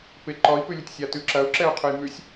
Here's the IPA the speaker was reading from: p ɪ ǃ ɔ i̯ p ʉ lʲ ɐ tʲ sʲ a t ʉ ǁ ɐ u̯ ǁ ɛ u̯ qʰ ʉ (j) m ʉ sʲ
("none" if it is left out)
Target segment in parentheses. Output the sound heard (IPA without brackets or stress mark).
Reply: j